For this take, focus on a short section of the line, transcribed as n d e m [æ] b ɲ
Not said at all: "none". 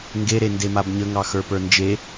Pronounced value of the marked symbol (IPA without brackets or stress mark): a